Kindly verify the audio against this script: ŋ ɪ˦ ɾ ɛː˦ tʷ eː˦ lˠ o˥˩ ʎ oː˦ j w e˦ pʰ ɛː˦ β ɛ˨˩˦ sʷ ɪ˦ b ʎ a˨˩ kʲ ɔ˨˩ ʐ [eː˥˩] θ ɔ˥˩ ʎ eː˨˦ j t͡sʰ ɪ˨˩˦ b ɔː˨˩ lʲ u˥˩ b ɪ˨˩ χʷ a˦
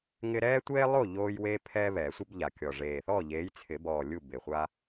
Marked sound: incorrect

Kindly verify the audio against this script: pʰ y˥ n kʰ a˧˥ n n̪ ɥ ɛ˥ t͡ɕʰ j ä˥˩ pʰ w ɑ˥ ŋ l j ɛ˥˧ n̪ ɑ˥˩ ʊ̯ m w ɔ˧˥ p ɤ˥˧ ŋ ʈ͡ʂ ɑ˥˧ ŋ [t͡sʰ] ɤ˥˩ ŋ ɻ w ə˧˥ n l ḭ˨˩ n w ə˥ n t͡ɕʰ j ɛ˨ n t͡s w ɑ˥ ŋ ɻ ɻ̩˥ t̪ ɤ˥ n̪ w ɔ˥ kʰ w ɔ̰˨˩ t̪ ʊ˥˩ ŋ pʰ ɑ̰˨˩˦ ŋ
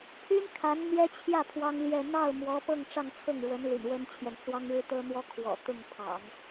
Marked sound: correct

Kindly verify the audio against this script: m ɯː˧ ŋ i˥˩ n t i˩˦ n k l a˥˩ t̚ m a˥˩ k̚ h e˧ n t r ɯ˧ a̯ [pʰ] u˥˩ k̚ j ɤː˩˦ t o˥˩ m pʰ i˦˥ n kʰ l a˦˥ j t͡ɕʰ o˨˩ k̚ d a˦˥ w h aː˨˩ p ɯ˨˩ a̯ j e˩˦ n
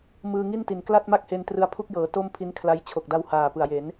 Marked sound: correct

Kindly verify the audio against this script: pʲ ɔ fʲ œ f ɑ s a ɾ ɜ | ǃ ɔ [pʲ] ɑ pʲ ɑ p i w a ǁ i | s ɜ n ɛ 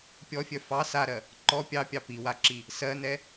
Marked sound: correct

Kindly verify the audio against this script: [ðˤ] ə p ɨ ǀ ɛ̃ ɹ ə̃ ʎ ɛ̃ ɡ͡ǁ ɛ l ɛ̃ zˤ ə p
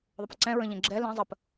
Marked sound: correct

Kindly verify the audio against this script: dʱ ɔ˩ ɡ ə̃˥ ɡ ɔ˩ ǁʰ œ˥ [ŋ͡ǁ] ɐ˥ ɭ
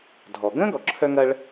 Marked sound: incorrect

